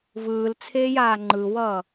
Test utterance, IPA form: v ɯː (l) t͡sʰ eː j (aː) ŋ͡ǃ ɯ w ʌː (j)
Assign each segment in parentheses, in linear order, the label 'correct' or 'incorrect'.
correct, correct, incorrect: none

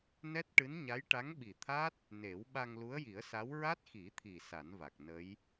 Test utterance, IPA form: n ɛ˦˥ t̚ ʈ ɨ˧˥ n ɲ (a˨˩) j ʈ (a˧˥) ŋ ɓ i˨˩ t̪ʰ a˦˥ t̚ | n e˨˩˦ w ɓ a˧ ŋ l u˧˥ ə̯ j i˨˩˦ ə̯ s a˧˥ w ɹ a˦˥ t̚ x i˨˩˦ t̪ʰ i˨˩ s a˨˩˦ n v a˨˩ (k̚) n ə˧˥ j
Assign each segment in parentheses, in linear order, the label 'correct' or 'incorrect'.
incorrect: a˧˥, correct, correct

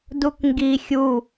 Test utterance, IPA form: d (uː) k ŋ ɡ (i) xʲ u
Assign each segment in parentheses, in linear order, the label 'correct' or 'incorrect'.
incorrect: u, correct

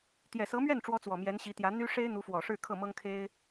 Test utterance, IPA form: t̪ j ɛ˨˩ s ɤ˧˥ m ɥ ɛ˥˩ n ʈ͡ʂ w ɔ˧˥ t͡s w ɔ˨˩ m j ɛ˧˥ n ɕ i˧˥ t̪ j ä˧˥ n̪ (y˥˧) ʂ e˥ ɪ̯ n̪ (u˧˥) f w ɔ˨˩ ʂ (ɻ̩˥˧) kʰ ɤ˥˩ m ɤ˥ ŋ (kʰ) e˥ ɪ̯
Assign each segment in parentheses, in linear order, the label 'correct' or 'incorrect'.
incorrect: y˥, correct, correct, correct

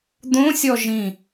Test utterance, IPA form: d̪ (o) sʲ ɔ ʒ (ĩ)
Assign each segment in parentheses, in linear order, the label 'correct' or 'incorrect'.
incorrect: õ, correct

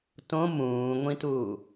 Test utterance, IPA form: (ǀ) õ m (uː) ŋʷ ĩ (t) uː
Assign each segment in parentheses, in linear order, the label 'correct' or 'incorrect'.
incorrect: t, incorrect: ũː, correct

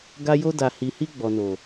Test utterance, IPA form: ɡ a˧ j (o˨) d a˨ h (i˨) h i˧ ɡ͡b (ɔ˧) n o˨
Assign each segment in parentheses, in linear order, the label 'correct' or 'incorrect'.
incorrect: o˧, correct, incorrect: ɔ˨

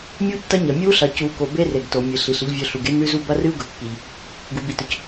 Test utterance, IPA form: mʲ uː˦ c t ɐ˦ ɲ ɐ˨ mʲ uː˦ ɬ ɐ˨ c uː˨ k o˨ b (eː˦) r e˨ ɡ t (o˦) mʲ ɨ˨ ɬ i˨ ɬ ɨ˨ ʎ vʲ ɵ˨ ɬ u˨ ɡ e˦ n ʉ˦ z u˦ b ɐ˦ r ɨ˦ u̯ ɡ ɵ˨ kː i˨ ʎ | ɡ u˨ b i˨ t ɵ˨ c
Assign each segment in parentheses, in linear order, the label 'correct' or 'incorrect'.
incorrect: e˦, incorrect: o˨

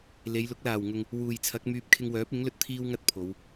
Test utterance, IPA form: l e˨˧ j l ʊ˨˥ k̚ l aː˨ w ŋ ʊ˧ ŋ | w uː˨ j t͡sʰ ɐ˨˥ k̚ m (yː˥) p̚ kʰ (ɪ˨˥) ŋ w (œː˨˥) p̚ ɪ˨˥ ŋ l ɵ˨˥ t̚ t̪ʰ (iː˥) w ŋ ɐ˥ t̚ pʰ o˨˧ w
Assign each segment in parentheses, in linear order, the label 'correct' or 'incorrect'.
incorrect: yː˧, incorrect: ɪ˧, correct, correct

